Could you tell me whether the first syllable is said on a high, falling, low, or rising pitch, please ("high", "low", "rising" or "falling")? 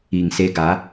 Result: low